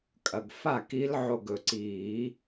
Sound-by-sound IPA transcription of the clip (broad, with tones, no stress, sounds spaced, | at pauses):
kʼ ɐ˩ ɡ f a˥˩ k i˧˥ l ʕ o˧˩ ɡ ɵ˩ ǀ iː˨˩˦